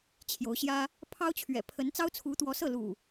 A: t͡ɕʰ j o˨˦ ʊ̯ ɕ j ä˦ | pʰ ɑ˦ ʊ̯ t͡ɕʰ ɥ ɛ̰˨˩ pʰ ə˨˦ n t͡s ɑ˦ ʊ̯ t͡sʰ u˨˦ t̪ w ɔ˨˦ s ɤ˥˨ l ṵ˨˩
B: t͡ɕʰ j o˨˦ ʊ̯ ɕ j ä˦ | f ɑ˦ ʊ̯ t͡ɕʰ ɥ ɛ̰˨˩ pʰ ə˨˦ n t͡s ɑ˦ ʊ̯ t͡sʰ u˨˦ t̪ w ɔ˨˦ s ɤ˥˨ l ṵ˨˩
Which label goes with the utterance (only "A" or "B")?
A